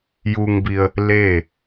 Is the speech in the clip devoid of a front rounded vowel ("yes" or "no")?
yes